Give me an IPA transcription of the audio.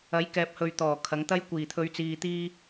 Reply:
ɐ˨˥ j k ɛː˨ p̚ h ɵ˨ ɥ t̪ ɔː˨˩ kʰ ɐ˨˥ ŋ t̪ ɐ˥ j kʷ iː˨˩ t̪ʰ ɵ˨˧ ɥ t͡s iː˨ t̪ iː˧

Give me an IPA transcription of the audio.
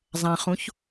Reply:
zˤ ã χ ũ ç

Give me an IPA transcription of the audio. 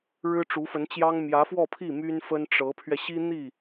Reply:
ɻ ɻ̩˥ ʈ͡ʂ u˧˥ f ə˧˥ n t͡ɕ j ɑ˥ ŋ m j ä˧˥ f w ɔ˥˧ pʰ i˥˩ m y˥ n f ə˥ n ʈ͡ʂ ɤ˧˥ pʰ ɥ ɛ˧ ɕ i˥ n̪ i˥˩

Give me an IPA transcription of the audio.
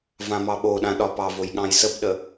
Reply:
v ã m ɑ ɓ o ɗ ã ɗ ɒ p ɑ v o j ɠ ɑ̃ j s ə b ɗ ə

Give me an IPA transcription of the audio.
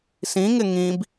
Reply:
s ĩ ŋ ɪ ŋ ĩ b

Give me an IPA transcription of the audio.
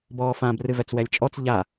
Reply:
b ɔː f ã b r ɨ v ɛ t͡s w ɛ lʲ t͡ʃʼ ɔ t͡s ʎ a

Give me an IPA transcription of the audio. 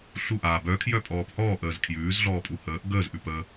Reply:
ɬ u ʔ aː b œ kʰ j œ pʼ ɔː p h ɔː ʔ əː z kʰ j ʉː z ɮ ɔː pʼ u h əː ʔ ɡ əː z ʔ ʉ p ə

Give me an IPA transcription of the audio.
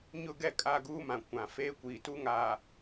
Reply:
ɲ ʊ˦˨ ɡ ɛ˦ kʼ a˦˨ ɡ uː˦ m ã˨ kʷ ã˨ f eː˦ kʷ iː˨ t u˦ ŋ aː˨

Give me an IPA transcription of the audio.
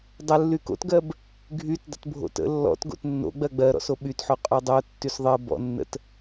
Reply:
dˤ ə lː y k o̰ t ɡ ɜ b | ɡʱ y t dˤ ə̰ t bʱ o̰ t ə̰ lː ɔ̰ t ɡ o̰ t nː o̰ ɡ͡b ɜ ɡ͡b ɜ ɾ ɔ̰ s o ɓ y t ħ o qʼ o dˤ o tː y s ðˤ ɜ b ɔ̰ nː ə̰ t

